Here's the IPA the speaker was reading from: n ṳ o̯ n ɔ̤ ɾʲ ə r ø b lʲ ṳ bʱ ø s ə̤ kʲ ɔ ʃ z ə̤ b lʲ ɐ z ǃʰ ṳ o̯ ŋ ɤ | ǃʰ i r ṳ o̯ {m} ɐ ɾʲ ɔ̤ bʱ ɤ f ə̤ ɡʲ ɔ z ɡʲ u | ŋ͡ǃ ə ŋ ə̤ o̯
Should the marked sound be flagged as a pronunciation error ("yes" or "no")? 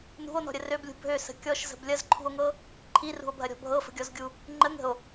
yes